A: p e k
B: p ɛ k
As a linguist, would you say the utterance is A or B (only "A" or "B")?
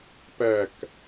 B